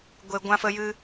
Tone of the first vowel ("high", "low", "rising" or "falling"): high